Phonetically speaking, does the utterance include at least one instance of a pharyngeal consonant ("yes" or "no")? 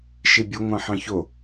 yes